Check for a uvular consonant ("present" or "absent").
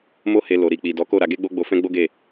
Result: absent